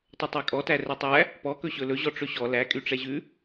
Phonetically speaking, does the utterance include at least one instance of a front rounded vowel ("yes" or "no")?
yes